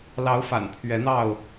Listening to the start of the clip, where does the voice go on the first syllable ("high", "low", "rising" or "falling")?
rising